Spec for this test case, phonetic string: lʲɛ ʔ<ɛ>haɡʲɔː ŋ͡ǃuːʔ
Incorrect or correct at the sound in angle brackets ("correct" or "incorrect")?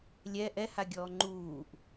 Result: correct